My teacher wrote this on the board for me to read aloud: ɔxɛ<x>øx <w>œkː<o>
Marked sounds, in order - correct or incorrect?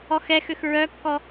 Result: correct, incorrect: ɹ, incorrect: ɔ

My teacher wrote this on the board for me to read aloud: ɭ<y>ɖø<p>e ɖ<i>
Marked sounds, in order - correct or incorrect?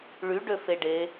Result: correct, incorrect: f, incorrect: e

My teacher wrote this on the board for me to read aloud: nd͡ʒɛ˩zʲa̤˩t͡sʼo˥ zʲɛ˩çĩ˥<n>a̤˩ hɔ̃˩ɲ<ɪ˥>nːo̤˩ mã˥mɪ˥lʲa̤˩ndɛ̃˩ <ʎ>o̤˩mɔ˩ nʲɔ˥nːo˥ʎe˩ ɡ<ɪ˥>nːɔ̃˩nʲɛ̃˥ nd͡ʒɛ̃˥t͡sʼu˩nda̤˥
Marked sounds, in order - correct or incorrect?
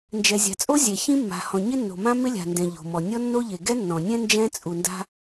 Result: incorrect: mː, correct, correct, incorrect: ɛ˥

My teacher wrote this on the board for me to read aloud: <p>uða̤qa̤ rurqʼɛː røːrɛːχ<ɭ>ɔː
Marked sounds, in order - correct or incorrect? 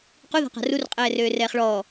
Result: incorrect: q, correct

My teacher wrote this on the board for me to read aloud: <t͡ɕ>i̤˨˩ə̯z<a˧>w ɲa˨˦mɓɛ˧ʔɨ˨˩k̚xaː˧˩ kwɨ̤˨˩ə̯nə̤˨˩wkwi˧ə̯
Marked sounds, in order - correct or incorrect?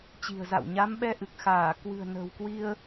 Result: correct, incorrect: a̰˧˨

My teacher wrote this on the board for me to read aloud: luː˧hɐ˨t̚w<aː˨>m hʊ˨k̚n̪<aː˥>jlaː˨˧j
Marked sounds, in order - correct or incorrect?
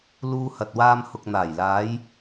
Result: incorrect: aː˧, incorrect: aː˨˩

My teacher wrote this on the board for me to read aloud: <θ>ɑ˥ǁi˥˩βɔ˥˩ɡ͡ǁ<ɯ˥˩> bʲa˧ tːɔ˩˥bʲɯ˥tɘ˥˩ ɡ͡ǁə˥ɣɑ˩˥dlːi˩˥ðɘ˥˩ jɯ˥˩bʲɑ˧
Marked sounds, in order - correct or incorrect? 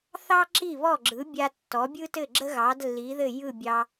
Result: correct, incorrect: ɯ˩˥

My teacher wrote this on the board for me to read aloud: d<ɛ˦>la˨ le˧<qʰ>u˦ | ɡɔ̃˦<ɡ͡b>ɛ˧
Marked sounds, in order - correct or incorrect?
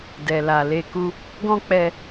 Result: incorrect: ɛ˨, incorrect: k, incorrect: k͡p

